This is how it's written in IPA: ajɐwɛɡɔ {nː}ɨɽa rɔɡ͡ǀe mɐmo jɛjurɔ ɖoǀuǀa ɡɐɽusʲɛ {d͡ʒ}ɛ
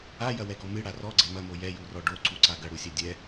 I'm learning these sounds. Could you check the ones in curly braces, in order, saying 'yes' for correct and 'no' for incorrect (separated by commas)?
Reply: no, no